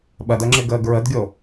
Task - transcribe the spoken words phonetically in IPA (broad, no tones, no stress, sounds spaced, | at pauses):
ɓ ɜ d ɜ ŋ͡ǁ ɪː ɡ əː ɡ ɹ ə d ɡʲ o